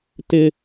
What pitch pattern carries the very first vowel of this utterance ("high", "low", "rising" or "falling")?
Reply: high